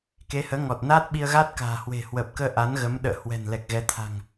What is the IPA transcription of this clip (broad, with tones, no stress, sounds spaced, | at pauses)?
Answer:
k e˨˦ h əː˨˦ ŋ ɔ˨˩ t̚ n aː˦˥ t̚ ɓ i˧ ə̯ ɣ a˦˥ t̚ k a̤ː˨˩ h w e̤˨˩ h w əː˨˩ p̚ k əː˧ ʔ a˨˦ n ɣ ə˨˦ m ɗ ə̰ː˧˨ h w ɛ̤˨˩ n l ɛ˨˩ k̚ ɣ ɛ˨˦ t̪ʰ a̤˨˩ ŋ